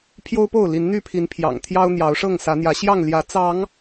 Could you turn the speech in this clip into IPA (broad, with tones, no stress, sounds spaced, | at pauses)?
pʰ j o˦ ʊ̯ p o˥˨ ʊ̯ l i˨˦ n n̪ y˥˨ pʰ i˨˦ n pʰ j ɑ̰˨˩ ŋ t̪ʰ j ɑ˦ ʊ̯ n̪ j ɑ˨˦ ʊ̯ ʂ ɤ˥˨ ŋ s ä˨˦ n̪ j ä˨˦ ɕ j ɑ˥˨ ŋ l j ä˨˦ t͡s ɑ˨˦ ŋ